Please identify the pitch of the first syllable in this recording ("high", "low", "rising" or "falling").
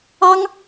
high